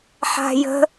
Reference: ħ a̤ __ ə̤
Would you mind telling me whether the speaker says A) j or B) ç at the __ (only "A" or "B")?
A